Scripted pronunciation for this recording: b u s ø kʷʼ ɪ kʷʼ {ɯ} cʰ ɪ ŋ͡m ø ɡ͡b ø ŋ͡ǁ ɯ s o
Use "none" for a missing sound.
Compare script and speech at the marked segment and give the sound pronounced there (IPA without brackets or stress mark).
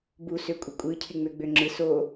ɯ